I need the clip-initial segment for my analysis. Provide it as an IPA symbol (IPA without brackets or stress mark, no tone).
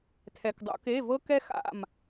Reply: tʰ